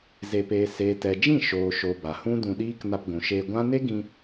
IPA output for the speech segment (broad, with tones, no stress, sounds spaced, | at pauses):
z e˧ p eː˧ s eː˨ t ɛ˨ d͡ʒ ĩ˦˨ ʃ oː˨ ʃ o˨ b a˨ h ũ˦ d ũ˧ ɗ iː˦ k n a˧ p ɡʷ ũ˨ ʃ eː˧ ɡʷ ã˦ n e˦ ɡ ĩ˧